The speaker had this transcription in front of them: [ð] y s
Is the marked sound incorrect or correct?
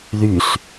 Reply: correct